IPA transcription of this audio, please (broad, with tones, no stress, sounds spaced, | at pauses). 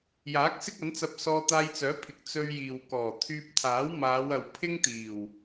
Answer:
j aː˨˥ k̚ s ɪ˥ k̚ ɐ˨˥ n t͡s ɐ˧ p̚ s ɔː˧ t̪ aː˧ j t͡s œː˨˥ pʰ ɪ˨ k̚ t͡s ɵ˧ ɥ j iː˨ w k ɔː˨˩ t̪ʰ yː˧ p̚ t̪ʰ aː˨˥ w m aː˨˧ w ɐ˨ w pʰ ɪ˥ ŋ t̪ iː˨˩ w